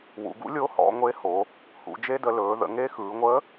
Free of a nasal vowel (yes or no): yes